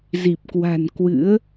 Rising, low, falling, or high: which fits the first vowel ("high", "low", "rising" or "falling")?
low